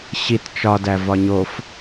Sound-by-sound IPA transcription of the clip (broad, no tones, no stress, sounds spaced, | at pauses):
ɕ i t t͡ʃ ɒ d æ v ɒ ɲ o f